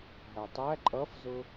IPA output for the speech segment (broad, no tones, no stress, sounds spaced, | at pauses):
ɦ æ tˤ æ ǃʼ ʌ f z ʊ